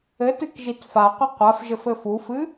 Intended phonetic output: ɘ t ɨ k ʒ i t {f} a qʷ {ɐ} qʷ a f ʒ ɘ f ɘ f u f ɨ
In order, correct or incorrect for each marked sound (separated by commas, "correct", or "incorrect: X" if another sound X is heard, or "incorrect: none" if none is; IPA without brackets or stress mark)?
correct, correct